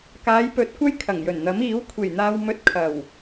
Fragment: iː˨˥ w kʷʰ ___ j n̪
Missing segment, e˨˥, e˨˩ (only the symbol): e˨˩